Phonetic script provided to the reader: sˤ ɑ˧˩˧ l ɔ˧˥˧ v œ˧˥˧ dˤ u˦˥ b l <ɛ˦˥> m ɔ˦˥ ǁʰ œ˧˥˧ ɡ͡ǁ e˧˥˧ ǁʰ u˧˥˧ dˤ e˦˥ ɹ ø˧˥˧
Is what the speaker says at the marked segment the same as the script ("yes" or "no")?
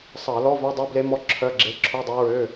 no